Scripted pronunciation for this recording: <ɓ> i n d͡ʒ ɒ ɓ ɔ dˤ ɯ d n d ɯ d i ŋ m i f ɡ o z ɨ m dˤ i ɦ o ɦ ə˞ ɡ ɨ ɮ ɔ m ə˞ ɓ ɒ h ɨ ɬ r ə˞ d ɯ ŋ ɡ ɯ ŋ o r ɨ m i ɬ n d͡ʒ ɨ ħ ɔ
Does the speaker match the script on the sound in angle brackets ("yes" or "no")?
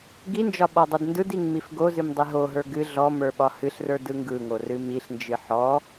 no